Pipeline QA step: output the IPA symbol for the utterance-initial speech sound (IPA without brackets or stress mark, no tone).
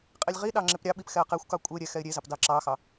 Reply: qʼ